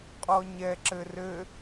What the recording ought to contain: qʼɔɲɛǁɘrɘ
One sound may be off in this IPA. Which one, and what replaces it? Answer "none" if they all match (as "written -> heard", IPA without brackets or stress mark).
none